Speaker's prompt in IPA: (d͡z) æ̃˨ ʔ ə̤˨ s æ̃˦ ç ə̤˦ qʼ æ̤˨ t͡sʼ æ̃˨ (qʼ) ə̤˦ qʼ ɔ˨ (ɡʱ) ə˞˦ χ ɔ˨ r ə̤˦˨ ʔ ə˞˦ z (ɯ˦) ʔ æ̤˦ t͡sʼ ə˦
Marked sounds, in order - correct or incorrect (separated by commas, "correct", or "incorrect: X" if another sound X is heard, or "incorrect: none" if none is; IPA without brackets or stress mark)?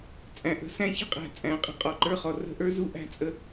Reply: incorrect: t͡sʼ, correct, incorrect: ǃ, incorrect: u˦